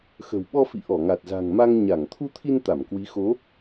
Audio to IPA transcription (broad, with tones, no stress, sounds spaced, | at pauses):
x ə̤˨˩ w ɓ ɔ˧ f ḭ˧˨ ʔ ɔ˧˩ ŋ a˨˩ t̚ z a̤˨˩ ŋ m a˧ ŋ ɲ a˧˩ ŋ t̪ʰ u˧ t̪ʰ i˧ n t̪ a˧˩ m k w i˨˦ x o˨˦